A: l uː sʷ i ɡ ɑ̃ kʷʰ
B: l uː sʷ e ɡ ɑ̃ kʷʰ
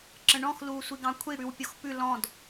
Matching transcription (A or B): A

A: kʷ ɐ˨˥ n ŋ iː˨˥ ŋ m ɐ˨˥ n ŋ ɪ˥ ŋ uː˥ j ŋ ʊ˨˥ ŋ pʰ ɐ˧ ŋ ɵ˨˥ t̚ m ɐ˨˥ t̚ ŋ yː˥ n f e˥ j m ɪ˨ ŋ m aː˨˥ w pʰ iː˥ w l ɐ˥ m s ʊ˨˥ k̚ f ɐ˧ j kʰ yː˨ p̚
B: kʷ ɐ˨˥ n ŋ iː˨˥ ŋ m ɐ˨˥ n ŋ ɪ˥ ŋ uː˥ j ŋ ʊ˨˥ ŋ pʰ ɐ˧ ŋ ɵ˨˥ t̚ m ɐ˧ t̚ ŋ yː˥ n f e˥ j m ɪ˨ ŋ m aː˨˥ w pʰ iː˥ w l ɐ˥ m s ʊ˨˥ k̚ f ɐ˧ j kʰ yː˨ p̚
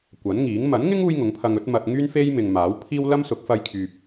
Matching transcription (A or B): B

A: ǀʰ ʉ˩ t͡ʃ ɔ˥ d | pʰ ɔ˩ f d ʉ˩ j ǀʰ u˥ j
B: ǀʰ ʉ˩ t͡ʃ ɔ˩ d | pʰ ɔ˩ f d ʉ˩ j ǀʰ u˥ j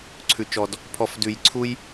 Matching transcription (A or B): B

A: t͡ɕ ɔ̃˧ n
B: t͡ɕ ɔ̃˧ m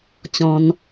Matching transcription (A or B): A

